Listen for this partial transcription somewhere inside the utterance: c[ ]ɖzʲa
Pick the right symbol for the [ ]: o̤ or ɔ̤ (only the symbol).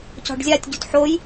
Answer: ɔ̤